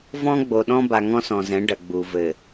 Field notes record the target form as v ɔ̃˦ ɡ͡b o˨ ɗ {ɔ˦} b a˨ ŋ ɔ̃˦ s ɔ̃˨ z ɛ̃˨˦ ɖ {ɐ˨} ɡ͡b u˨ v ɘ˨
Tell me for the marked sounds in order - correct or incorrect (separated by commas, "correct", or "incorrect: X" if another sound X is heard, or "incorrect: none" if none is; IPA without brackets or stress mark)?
incorrect: ɔ̃˦, correct